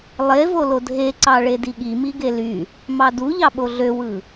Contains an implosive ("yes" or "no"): yes